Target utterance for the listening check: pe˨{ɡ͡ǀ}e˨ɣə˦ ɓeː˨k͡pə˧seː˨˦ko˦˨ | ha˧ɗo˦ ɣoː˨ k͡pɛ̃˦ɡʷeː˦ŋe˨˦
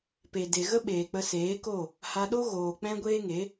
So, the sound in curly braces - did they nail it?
no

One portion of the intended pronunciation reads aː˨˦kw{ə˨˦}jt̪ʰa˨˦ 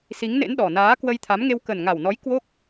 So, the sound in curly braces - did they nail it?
no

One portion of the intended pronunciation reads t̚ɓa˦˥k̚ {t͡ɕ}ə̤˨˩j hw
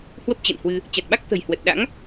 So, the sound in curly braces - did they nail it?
no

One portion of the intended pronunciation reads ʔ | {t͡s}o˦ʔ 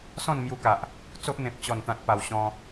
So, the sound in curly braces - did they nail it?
yes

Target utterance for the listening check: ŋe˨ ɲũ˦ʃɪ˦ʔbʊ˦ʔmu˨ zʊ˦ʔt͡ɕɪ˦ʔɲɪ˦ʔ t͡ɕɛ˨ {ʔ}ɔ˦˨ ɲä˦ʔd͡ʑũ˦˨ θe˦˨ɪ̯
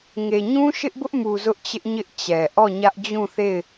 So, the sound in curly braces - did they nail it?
yes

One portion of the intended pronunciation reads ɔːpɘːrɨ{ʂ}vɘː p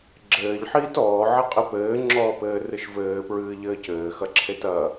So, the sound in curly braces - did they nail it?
no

